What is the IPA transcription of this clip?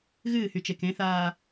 ɣ ɨː h y t͡ʃ e k ẽ θ aː

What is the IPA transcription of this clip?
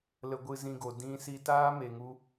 l ə˧ ɡʷ ɨ˧ z ĩ˧ ɡ o˨ d ĩ˧ s i˧ t aː˦ m e˨ ŋ u˧

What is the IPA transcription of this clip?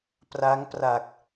p r a˦˥ ŋ p r a˨˩ k̚

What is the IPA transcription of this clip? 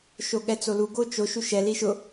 ʃ o ɠ ɛ t͡s o l u ɡ o t͡ʃ o ʃ u ʃ ɛ l i ʃ ʊ

